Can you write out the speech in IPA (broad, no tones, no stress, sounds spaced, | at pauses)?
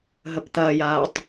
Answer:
ɦ ə p t̪ ɐː j aː tˤ